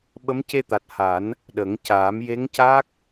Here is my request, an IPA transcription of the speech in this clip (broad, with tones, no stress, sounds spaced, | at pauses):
ɓ ə˧˥ m c e˧ t̪ a˨˩ t̚ h a˨˩˦ n | ɗ ə˨˩˦ ŋ c aː˨˩˦ m j e˧˥ ŋ c aː˦˥ k̚